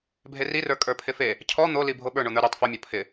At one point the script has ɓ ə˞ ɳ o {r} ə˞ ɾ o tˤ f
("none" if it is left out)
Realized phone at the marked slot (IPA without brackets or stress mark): n̪